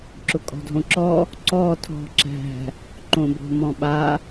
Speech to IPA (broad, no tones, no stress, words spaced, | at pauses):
ǁʊkʼɔ̤dʱõǁɔ | ǀɔ tʰɔ̤ ǁæ̤ | ǃõbo̤mɔ̃ɓa